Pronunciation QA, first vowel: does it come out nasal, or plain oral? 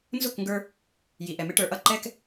oral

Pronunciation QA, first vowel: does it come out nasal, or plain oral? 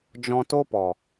nasal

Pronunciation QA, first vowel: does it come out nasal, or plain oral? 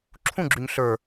nasal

